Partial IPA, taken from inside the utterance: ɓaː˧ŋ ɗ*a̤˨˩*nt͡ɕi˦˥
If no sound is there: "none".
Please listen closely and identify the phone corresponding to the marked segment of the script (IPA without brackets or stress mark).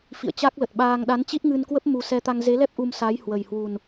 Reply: a˨˦